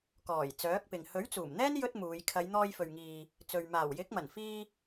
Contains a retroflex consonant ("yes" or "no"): no